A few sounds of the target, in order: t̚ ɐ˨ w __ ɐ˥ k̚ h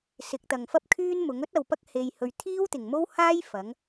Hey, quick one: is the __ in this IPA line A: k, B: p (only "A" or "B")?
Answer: B